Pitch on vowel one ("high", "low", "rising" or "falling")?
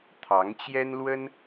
rising